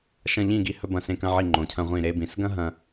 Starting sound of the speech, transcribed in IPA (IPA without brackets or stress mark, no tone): ʃ